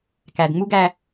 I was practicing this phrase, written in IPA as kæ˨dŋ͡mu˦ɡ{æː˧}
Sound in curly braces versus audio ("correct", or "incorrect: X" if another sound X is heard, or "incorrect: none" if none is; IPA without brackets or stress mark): incorrect: æ˧